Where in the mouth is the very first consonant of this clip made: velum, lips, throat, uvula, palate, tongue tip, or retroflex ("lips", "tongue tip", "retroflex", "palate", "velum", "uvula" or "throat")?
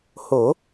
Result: throat